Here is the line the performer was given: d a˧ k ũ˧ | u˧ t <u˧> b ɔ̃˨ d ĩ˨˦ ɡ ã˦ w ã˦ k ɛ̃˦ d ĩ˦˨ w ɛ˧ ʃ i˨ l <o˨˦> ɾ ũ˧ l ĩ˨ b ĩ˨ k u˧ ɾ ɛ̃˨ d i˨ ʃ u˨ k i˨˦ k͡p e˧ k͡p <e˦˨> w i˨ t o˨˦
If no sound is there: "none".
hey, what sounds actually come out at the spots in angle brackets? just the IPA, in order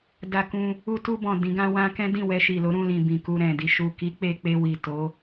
u˧, o˨˦, e˧

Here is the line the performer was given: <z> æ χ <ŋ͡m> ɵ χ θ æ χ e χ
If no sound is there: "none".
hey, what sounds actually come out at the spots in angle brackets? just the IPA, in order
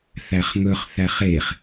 θ, ŋ

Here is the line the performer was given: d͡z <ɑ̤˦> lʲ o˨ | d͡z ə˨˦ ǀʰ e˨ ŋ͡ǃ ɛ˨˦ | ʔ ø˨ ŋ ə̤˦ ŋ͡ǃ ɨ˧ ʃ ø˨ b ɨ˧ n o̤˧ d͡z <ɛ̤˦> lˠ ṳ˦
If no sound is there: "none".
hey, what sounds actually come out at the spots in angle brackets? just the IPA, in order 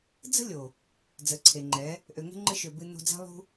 ə̤˦, æ̤˦

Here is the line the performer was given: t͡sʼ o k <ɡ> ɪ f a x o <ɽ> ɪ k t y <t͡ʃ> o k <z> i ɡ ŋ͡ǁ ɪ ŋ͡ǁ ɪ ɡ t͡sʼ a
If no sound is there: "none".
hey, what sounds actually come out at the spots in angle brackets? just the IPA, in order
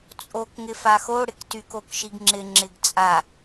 ŋ, ɽ, k, ʃ

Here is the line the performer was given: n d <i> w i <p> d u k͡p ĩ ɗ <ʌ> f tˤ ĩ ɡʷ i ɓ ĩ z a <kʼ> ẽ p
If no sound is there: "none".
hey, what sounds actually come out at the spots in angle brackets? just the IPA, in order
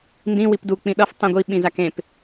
ĩ, p, ʌ, k

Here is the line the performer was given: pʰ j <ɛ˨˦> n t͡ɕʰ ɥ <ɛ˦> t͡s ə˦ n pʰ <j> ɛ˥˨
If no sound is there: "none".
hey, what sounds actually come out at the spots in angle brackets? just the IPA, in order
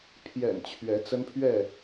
ɛ̰˨˩, ɛ˨˦, ɥ

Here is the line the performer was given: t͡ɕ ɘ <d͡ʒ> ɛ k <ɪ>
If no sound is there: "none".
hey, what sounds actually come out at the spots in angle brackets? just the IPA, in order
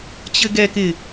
ɡ, ɪ

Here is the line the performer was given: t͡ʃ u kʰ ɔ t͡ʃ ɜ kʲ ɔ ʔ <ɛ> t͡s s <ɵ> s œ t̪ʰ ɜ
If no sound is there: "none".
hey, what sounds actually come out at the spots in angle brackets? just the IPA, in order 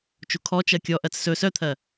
ɜ, ɵ

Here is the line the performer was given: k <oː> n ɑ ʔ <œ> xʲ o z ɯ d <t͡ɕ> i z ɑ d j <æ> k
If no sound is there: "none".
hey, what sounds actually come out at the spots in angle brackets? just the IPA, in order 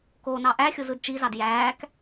oː, æ, t͡ʃ, æː

